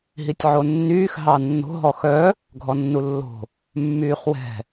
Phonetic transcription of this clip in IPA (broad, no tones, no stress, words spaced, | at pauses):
ɦitʲʕonːyːx ɦɑnːo̤ ɦɔxœ | ɡʱɔnːulːo̤ | mːyːχwɛ̤